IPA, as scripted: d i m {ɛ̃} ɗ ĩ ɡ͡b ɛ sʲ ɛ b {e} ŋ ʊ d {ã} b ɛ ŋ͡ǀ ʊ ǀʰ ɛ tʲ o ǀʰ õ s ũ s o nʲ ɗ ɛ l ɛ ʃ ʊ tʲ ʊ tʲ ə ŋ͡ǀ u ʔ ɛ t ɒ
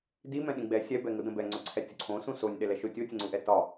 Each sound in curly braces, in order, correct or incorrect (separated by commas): correct, incorrect, incorrect